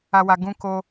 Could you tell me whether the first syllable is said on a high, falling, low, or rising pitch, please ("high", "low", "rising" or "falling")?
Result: high